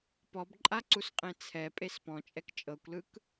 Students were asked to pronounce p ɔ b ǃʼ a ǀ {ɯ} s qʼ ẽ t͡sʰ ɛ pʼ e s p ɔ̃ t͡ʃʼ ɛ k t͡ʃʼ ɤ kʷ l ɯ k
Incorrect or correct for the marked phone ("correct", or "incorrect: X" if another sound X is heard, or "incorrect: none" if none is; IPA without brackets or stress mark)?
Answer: incorrect: u